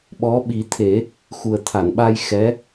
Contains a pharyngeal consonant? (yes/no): no